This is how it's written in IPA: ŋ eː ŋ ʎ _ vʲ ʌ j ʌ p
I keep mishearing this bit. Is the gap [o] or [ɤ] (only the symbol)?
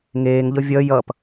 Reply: ɤ